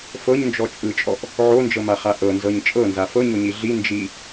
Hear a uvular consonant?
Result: yes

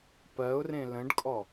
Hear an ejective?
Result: yes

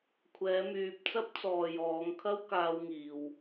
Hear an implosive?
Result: no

